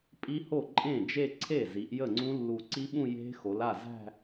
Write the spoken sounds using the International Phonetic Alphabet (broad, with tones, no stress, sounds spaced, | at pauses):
pʼ i˦˥ h o˥˩ ǃʼ ẽ˥˩ d͡ʒ e˥˧ ǀʰ e˥˩ z i˩˧ ʔ j ə˥˩ ŋ͡ǀ ũ˦˥ lː u˨˩ ǀ i˦˥ ɓ ũ˥˧ j e̤˦˥ x o˩˧ l a˥˩ z æ̤˥˧